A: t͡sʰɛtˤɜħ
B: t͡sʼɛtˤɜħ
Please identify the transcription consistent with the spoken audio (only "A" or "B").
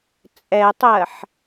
B